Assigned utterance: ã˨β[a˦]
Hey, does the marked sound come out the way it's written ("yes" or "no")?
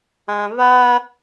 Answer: yes